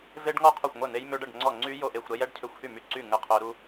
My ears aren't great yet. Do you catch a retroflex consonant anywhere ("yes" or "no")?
yes